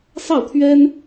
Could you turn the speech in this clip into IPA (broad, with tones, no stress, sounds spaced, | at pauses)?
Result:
s ɑ˥˩ ʊ̯ t̪ʰ ɥ ɛ˥ n